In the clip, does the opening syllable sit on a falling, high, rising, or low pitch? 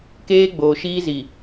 high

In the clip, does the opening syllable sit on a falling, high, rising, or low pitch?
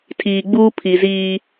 low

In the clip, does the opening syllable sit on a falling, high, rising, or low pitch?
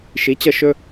rising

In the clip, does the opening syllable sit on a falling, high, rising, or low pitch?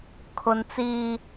high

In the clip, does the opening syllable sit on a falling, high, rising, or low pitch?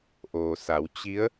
low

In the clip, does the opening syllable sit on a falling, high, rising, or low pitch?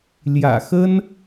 low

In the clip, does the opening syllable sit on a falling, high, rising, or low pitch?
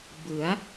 rising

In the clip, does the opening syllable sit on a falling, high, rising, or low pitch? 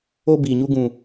high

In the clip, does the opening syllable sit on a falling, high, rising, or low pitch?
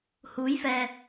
rising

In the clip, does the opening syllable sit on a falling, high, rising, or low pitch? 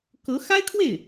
rising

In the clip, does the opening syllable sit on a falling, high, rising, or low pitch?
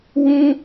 high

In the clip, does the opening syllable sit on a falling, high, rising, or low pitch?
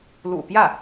low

